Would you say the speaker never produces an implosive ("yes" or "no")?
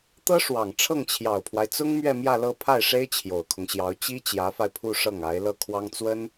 yes